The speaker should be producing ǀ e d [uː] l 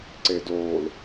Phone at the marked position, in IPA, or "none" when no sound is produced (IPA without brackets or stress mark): oː